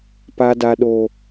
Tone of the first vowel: high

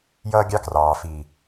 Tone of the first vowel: high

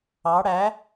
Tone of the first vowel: rising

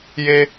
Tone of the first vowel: high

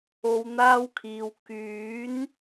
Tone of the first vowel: low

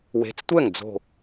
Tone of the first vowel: rising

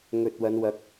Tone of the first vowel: low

